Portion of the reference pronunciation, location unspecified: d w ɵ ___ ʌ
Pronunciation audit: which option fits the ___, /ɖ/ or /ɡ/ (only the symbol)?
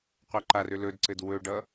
ɖ